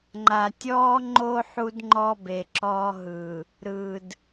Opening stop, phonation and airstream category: click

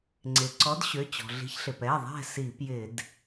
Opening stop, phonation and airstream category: click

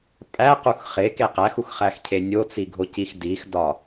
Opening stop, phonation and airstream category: ejective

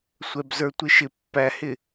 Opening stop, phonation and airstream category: plain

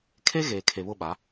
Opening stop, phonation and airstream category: aspirated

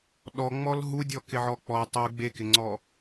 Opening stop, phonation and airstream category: implosive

